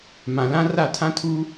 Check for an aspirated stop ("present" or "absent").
present